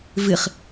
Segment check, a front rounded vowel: absent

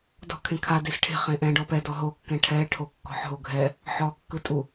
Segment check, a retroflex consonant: present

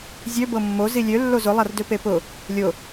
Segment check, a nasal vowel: absent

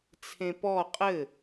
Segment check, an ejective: present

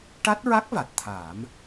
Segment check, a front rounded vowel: absent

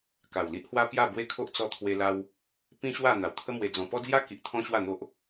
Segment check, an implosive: absent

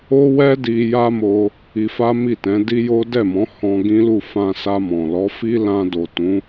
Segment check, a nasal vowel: present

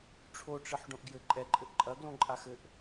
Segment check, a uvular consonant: absent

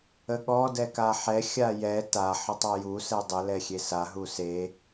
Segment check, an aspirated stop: absent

